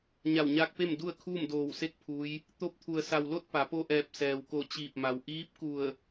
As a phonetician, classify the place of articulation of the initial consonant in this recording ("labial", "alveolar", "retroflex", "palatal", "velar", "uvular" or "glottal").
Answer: palatal